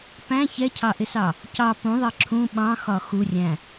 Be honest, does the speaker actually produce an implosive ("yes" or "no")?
yes